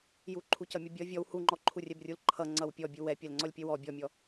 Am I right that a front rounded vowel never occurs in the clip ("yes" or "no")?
yes